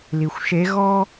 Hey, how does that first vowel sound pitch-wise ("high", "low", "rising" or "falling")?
low